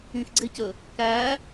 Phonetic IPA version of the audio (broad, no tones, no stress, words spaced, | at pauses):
ĩxɡ͡ǀecɵ | kæ